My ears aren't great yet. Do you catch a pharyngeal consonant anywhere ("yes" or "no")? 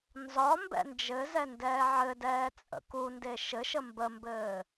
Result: yes